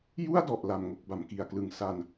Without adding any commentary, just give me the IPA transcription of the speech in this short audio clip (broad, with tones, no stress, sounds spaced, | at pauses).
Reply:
j u˥˩ a̯ d ɔ˨˩ ʔ l a˨˩ m ŋ o˨˩ k̚ b a˩˦ m k i˨˩ a̯ k l ɯ˨˩ ŋ s a˧ n